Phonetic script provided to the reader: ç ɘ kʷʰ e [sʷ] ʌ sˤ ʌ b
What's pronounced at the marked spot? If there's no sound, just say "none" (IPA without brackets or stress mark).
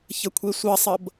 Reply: sʷ